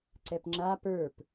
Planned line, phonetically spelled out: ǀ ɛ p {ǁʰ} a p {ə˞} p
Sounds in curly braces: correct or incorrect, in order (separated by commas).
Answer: incorrect, correct